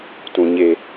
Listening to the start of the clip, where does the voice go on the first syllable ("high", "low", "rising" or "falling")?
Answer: low